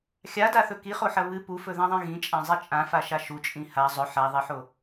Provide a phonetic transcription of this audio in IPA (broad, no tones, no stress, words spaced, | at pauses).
xʲadaθɵ kiχoħɐ βɨ pufɵðãðˤĩ ɣĩt͡ʃʼãzˤi t͡ʃʼãfaʃa ʃut͡ʃʼĩ ha zˤɵ ħaðˤiħo